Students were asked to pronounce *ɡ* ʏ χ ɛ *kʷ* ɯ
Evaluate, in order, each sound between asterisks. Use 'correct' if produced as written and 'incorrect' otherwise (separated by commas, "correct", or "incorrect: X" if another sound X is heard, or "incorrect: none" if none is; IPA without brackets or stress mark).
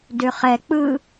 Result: incorrect: d, incorrect: k͡p